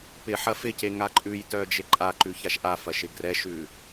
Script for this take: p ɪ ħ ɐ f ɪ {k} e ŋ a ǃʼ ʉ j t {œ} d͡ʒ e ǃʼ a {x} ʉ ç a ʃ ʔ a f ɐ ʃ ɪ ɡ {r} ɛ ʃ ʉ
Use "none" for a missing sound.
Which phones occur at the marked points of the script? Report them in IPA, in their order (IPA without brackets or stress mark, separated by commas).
c, œ, ǃ, r